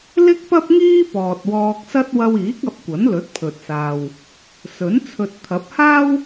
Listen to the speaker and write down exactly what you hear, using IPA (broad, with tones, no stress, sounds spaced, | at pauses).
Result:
l ɪ˥ k̚ p ɐ˥ p̚ ŋ iː˥ p ɔː˨ t̚ w ɔː˧ k̚ s ɐ˥ t̚ w ɐ˧ w iː˨˥ k̚ ɐ˨˥ p̚ kʷ ɐ˨˥ n l ɵ˨˥ t̚ pʰ ɵ˨ t̚ s aː˨ w | s ɵ˨˥ n t͡sʰ ɵ˨ t̚ t̪ʰ ɐ˨˥ p̚ h aː˥ w